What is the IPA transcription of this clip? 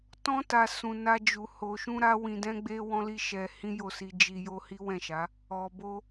tɔ̃˧ta˨ sũ˨na˧ d͡ʒu˨ ho˨ʃũ˧ ɾa˦wĩ˧dɛ̃˦ɡ͡be˦ wɔ̃˦li˦ʃɛ˧ hĩ˦jo˦˨si˧ d͡ʒi˧jo˦ hi˦wɛ̃˦˨ʃa˨˦ | ɔ˨ bo˧

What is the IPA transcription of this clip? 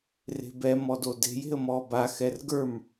re̤bɛ mɔdode̤j e̤ə̯mɔːba xɛrɡə˞m

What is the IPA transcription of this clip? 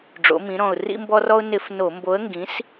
ɖ͡ʐo̰˩˧mĩ˩˧ɾɔ̃˨˩ʊ̯ rḭ˧mbɔ˧rɔ˧ʊ̯ nɪ˧˩˧f no˧˩˧mbo˨˥ə̯ŋɡĩ˨˥s

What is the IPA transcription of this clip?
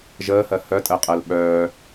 ʒəːhɜ hœtʼɜqʼɜl ɓœː

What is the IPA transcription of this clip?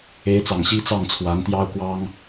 e˧˥ɪ̯t͡sɑ˨˩ŋ ɕi˥t͡sɑ˥˩ŋt͡sʰwa˧˥n t̪jɑ˥ʊ̯kwɑ˥ŋ

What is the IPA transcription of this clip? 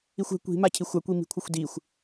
ixʷɛ̤ kʷi̤ macʰixʷa kʷimi̤kʷʰɘxʷdixʷ

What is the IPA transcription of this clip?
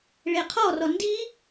ɭeqʰɔrɔ ndi

